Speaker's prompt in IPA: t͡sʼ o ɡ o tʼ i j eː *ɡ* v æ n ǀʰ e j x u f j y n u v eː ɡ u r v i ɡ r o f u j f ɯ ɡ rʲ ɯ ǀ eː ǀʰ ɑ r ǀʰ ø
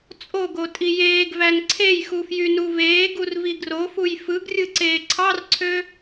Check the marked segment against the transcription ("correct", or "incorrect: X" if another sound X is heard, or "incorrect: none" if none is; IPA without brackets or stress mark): correct